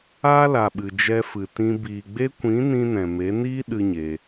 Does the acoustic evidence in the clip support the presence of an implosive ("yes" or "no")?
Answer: yes